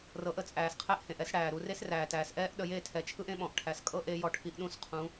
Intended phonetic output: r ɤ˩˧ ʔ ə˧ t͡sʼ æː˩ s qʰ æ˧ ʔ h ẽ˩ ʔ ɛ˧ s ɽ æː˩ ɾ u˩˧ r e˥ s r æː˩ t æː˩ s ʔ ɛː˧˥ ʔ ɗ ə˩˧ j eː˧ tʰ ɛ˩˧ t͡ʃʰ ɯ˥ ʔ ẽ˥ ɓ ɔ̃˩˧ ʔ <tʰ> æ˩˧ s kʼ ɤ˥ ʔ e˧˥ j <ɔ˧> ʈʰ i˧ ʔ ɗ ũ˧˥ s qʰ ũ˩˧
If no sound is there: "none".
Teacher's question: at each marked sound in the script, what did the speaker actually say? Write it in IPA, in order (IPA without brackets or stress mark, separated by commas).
ʈʰ, ɔ˧